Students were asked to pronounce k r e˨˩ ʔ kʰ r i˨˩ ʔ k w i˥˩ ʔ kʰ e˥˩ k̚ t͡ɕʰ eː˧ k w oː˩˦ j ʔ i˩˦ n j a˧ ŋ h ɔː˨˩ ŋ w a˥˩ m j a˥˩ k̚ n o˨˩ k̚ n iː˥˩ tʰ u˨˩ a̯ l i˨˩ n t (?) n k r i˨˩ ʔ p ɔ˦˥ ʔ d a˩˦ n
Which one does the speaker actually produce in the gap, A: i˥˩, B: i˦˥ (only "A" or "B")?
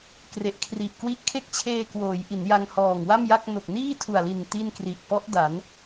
A